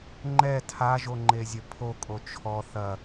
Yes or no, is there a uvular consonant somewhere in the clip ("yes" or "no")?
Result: no